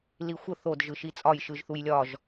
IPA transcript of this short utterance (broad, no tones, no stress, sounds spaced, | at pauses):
l i xʷ ə θ o d ʒ ɯ ʃ i t͡sʼ ɒ j ʃ ɯ ʒ θ u j lʲ ɒ ʒ